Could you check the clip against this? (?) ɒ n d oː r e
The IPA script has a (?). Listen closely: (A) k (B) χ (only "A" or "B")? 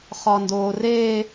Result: B